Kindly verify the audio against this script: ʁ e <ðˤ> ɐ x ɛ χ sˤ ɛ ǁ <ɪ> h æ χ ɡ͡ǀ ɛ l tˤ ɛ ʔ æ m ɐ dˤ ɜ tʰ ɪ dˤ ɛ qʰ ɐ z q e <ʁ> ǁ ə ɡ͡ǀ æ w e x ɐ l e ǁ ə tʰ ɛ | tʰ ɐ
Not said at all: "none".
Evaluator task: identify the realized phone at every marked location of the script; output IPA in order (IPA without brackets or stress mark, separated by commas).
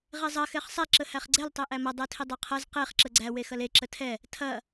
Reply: zˤ, ə, χ